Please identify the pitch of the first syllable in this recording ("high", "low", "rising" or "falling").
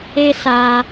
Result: high